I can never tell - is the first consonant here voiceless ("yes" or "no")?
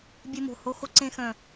no